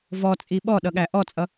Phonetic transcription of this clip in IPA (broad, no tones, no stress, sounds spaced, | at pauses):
v ɔ t͡sʼ i ɓ ɔ ɗ ʌ ɠ æ ʔ ɔ t͡sʼ ʌ